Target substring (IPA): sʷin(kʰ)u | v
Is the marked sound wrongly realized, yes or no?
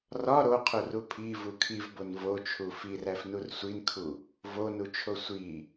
no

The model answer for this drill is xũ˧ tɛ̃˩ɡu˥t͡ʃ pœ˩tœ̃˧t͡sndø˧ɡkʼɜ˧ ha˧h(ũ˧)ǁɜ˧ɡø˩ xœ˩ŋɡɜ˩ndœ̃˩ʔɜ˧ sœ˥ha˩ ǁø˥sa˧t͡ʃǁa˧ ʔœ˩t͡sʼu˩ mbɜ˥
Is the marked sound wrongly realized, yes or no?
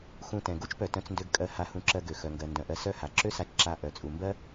no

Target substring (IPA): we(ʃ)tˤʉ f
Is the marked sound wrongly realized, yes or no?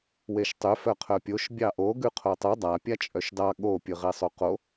no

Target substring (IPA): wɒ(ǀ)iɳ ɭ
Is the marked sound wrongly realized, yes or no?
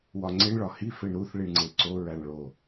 yes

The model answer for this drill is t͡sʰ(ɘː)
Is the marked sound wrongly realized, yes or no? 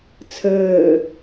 no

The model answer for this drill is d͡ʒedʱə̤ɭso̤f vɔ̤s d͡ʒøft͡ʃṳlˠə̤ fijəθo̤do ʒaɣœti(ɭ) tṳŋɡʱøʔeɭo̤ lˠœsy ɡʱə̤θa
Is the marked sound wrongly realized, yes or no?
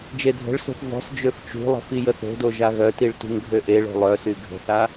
no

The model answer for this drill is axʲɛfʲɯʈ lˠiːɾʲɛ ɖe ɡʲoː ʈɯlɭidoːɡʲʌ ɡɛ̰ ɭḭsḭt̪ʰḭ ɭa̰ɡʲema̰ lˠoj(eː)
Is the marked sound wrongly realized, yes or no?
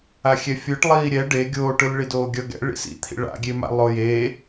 no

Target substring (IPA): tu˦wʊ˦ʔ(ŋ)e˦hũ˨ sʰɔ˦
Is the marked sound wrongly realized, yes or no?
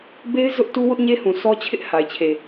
yes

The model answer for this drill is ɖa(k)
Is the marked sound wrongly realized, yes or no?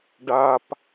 yes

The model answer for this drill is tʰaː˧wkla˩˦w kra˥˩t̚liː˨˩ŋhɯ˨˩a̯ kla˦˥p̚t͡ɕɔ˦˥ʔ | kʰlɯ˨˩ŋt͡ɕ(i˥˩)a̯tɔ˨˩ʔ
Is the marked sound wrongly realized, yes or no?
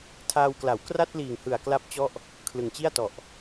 no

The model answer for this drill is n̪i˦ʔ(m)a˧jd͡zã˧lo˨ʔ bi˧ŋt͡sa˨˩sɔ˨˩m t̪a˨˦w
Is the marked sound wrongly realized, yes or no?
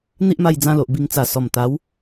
no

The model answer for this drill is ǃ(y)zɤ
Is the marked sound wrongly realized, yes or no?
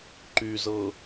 no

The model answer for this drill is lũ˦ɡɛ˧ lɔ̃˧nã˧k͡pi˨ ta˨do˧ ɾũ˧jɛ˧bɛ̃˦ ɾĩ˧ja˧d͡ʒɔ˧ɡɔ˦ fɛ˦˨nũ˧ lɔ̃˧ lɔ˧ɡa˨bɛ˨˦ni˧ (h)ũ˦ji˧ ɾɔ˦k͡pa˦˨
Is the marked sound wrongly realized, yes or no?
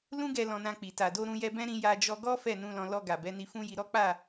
yes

